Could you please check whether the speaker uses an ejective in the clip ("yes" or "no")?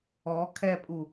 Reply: yes